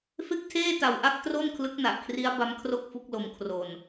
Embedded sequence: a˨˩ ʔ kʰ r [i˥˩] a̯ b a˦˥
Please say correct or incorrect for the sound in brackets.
incorrect